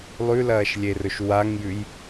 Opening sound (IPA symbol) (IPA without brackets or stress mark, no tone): lˠ